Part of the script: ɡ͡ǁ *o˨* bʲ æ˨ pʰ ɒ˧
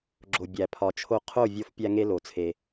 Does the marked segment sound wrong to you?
no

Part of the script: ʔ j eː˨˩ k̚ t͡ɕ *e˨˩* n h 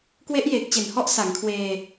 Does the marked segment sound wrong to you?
no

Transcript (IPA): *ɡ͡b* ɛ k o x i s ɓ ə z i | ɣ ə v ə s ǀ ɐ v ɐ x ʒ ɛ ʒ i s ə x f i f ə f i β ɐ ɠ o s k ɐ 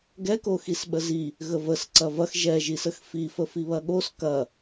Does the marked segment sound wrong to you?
yes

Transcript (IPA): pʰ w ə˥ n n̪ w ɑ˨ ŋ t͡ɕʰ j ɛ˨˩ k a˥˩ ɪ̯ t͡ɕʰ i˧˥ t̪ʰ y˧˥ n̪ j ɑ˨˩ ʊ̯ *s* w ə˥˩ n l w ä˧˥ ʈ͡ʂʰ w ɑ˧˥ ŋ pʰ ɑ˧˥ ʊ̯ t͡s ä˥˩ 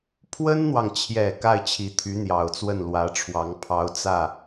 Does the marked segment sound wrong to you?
yes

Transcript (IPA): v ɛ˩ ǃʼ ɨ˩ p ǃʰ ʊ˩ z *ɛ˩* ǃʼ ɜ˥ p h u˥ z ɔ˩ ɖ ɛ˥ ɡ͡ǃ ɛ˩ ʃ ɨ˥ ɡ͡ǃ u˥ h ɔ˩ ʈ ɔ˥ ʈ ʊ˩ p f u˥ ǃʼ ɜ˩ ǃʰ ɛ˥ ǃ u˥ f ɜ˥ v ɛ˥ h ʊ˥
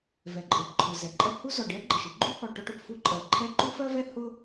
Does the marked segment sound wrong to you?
no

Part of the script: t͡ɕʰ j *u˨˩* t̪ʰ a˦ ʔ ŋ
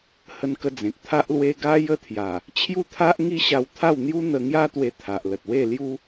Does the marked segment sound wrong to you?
yes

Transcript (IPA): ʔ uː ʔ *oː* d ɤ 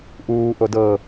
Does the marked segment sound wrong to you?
yes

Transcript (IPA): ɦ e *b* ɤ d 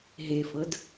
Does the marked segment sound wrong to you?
yes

